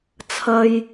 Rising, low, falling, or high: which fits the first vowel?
low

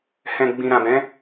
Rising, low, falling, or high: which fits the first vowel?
low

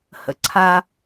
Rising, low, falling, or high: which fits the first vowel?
low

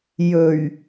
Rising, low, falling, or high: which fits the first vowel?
low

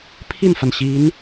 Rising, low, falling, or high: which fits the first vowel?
falling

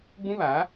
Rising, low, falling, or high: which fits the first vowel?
high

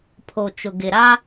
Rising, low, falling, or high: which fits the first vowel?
low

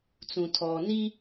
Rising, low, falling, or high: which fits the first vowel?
low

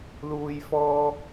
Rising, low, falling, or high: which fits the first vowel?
low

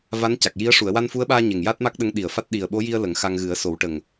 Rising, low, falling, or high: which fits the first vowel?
rising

